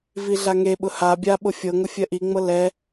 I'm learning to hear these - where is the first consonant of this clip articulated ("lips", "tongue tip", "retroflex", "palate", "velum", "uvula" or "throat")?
lips